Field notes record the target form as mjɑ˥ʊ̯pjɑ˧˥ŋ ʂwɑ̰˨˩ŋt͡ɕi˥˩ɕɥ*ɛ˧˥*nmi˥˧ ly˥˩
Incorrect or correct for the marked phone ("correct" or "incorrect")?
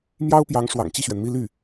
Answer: incorrect